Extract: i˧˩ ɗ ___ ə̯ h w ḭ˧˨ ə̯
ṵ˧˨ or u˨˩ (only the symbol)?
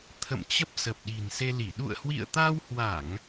ṵ˧˨